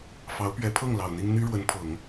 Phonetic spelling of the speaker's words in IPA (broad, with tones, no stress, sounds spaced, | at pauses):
f ɑ˧˥ ʊ̯ p ɥ ɛ˧˥ pʰ ɤ˥˩ ŋ l ɑ˨˩ ʊ̯ n̪ i˥ ŋ n̪ y˥ ɻ w ə˧˥ n pʰ ɤ˨˩˦ ŋ